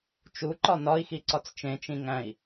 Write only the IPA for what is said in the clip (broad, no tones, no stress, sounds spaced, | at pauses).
t͡ʃ u ǃ ɒ n ɒ i̯ x i ǀ ɒ t͡s t͡ʃ ẽ t͡ʃ ĩ ŋ æ̃ i̯